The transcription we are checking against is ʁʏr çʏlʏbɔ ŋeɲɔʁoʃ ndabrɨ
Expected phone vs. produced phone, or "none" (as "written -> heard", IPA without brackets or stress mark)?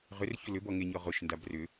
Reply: ɨ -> ʏ